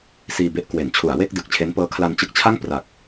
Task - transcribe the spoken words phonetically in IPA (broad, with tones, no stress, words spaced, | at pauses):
siː˧be˦˥ʔ kwe˩˦nt͡ɕʰu˩˦a̯we˥˩k̚ dɯ˨˩k̚t͡ɕʰe˦˥n pɤː˦˥kʰla˧nt͡ɕɯ˦˥k̚t͡ɕʰa˥˩ŋ pra˨˩k̚